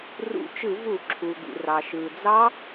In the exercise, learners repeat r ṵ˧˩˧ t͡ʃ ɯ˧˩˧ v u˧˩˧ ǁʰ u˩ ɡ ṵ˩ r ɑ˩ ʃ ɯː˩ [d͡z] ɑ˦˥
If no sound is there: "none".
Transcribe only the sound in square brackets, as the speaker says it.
d͡z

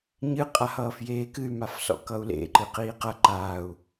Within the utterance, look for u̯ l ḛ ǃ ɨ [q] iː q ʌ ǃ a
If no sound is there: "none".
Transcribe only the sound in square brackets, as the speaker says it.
q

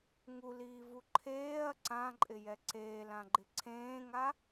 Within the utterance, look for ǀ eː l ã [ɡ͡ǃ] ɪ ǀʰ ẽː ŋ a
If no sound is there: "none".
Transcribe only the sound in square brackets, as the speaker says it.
ɡ͡ǃ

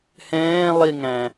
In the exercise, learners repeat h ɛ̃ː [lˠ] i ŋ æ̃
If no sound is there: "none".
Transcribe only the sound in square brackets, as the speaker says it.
lˠ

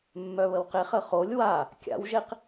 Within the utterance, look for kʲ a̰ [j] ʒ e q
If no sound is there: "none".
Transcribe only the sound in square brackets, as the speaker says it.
w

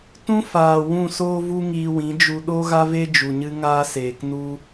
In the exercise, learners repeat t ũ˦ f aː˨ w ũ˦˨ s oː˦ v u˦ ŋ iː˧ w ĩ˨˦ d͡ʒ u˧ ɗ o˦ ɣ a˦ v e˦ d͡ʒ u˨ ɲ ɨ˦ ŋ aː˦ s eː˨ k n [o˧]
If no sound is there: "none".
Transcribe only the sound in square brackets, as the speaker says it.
u˧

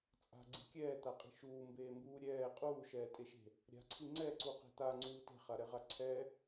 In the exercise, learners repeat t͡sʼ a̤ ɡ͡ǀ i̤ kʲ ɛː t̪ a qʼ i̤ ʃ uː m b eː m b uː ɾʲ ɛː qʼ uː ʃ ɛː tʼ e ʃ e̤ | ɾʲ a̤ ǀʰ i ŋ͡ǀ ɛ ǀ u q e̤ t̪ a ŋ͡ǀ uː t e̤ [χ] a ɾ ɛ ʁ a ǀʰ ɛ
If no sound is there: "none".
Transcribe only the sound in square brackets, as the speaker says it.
χ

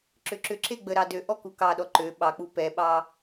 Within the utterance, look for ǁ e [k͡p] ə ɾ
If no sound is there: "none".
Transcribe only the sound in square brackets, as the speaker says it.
ɡ͡b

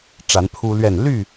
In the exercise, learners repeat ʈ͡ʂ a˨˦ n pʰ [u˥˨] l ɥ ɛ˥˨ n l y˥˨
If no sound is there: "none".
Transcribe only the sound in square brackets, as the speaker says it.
u˦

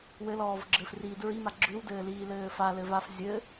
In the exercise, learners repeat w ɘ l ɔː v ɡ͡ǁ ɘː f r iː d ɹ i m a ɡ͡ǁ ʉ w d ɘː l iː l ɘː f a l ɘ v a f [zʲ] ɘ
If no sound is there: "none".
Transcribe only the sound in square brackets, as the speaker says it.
zʲ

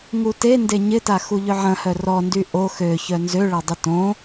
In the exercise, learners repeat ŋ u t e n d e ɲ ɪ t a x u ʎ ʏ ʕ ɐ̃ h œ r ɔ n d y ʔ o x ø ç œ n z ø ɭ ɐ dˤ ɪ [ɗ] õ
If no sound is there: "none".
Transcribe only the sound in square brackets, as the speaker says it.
t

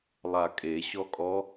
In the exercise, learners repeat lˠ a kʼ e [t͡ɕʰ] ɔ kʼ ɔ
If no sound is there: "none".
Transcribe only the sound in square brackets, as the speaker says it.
ɕ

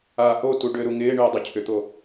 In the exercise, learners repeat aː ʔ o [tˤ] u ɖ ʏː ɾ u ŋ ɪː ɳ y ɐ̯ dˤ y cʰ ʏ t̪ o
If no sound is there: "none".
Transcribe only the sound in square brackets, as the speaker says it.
t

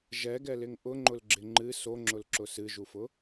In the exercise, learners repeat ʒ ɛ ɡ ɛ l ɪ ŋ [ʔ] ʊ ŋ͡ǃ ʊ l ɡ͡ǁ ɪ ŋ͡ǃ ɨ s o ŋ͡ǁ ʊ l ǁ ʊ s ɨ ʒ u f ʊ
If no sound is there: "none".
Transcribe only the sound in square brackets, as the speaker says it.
ʔ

